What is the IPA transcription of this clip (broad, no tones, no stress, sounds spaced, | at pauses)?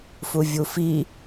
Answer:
f u vʲ u f i